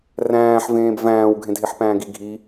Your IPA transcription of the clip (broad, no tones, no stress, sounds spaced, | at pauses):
r æ̃ː ħ v ẽː b v æ̃ː w ɡʱ ẽ dʱ e ħ p æ̃ː ɡ i ɡʱ i